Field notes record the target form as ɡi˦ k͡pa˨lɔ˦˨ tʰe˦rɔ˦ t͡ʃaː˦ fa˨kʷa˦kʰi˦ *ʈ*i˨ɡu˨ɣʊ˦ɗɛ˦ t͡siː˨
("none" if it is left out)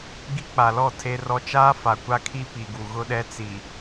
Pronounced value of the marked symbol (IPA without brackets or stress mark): p